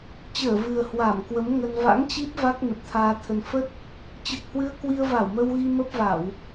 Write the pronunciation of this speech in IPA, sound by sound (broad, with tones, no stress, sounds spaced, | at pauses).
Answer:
t͡ɕ əː˧˩ v ɨ˨˩ ə̯ h w a˧˩ m k w ə˨˦ m ŋ ə˧ n v a̰˧˥ ŋ t͡ɕ i˦˥ p̚ v a˦˥ k̚ n ə˨˩ p̚ t̪ʰ aː˧ t̪ʰ ə˧ n f ə˦˥ t̚ | t͡ɕ ɨ˨˩ k̚ h w ɨ˧ ə̯ k w i˧ ə̯ v a˧˩ w m ə˧ w ɣ i˧ m ə˦˥ p̚ v a˧˩˨ w